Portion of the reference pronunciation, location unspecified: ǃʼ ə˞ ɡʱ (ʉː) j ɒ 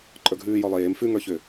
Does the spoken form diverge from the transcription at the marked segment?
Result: no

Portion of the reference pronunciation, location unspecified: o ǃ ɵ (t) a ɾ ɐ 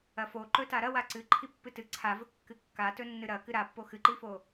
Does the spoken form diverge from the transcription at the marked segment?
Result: no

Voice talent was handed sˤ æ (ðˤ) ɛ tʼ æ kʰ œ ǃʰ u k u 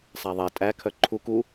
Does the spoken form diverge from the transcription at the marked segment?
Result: no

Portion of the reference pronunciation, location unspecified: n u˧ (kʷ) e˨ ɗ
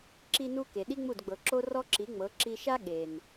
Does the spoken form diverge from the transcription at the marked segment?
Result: yes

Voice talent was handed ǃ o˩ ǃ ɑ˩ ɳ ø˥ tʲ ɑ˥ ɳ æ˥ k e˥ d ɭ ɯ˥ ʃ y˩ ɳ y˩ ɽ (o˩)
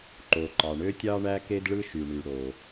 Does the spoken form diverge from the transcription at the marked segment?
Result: no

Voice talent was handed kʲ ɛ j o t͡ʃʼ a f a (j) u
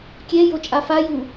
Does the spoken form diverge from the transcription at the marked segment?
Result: no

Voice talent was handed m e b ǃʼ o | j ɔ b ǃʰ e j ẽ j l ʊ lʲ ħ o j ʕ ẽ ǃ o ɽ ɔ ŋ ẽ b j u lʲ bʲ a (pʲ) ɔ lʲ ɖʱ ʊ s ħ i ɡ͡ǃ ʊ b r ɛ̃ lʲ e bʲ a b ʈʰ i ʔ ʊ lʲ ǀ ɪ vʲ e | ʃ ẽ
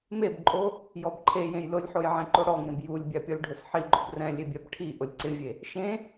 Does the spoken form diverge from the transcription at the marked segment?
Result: no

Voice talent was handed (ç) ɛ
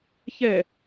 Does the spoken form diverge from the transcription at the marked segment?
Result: no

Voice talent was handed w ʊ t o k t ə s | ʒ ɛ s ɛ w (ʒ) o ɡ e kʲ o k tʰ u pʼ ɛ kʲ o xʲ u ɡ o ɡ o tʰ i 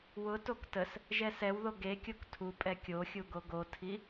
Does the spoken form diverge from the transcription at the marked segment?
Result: yes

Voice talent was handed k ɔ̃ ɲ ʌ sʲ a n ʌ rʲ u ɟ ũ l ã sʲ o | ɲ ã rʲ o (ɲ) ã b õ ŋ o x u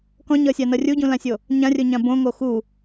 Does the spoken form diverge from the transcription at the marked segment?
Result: no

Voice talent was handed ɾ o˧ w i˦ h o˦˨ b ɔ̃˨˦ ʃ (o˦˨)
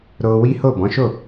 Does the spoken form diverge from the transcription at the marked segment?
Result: no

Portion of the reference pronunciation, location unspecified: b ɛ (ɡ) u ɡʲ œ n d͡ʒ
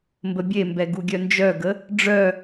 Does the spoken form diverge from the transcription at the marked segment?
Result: no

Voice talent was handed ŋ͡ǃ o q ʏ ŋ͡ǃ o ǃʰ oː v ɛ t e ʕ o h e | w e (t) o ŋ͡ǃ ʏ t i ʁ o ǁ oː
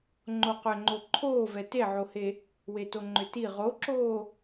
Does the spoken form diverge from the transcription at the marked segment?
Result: no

